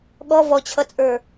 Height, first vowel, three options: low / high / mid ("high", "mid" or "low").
mid